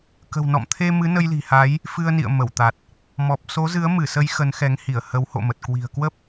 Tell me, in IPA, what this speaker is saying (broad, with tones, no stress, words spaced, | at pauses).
kə̤˨˩wnɔ̰˧˨mt̪ʰe˧ mɨ˨˦nə˧jli̤˨˩ha˨˦j | fɨ˧ə̯nḭ˧˨ə̯mə˧˩wt̪a˨˩t̚ | mɔ˨˩p̚so˨˦zɨ˨˦ə̯ mɨ˧˩sə˨˦j xə˨˦nxɛ˨˦ŋhi˧˩ə̯ hə˨˦w ho̰˧˨mə˨˩t̚kwi̤˨˩ə̯ kwə˦˥p̚